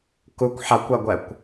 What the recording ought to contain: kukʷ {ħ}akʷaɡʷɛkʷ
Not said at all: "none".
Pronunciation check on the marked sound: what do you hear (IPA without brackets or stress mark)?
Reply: ħ